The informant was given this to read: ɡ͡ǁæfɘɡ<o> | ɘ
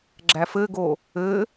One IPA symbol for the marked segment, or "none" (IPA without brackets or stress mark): o